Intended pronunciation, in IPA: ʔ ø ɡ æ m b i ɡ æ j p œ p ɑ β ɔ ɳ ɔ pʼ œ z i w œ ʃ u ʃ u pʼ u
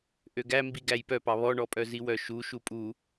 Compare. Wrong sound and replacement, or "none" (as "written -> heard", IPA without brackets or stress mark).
none